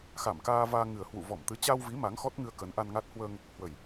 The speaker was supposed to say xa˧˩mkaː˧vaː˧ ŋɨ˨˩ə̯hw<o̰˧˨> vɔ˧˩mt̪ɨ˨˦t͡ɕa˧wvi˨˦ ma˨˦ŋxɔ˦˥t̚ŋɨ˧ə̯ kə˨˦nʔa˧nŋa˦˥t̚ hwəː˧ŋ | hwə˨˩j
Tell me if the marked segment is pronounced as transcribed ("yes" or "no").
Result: no